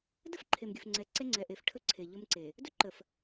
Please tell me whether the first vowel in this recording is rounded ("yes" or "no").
no